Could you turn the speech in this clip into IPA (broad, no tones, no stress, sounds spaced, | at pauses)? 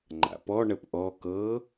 ŋ͡ǃ a̰ p ɔ ɳ ə p ʔ ɔ k ɤ